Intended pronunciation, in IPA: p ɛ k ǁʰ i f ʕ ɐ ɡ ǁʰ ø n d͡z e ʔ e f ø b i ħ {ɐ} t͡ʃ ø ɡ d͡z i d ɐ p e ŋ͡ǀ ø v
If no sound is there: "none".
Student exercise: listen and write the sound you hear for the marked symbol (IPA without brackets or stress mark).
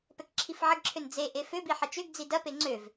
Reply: ɐ